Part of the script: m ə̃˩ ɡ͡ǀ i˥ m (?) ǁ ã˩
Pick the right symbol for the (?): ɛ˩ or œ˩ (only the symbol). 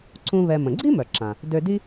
œ˩